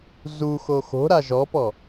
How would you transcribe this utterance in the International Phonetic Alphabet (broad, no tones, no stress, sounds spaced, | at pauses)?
z u x o x o̤ ɾ a ʒ ɔ p ɔ